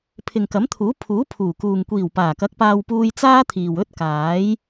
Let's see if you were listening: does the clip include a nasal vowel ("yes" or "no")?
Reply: no